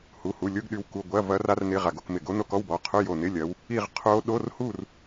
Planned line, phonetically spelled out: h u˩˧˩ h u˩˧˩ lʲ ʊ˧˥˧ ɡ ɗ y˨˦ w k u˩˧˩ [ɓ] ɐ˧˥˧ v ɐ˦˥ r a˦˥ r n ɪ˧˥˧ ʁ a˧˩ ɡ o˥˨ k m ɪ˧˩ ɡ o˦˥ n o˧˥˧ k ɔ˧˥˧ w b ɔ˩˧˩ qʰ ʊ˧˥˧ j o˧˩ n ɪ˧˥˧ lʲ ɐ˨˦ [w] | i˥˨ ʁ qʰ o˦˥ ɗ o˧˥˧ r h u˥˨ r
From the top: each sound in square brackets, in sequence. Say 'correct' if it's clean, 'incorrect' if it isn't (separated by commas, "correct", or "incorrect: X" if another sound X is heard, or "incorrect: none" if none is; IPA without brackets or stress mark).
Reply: incorrect: ɡʷ, correct